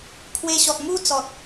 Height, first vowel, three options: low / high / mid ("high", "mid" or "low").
mid